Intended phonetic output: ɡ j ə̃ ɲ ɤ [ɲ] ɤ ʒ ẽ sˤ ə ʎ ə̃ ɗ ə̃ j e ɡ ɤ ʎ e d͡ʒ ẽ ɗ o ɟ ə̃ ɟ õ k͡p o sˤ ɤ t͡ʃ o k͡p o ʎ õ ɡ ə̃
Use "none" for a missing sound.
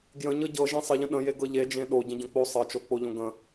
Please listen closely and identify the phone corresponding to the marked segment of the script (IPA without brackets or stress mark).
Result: ɟ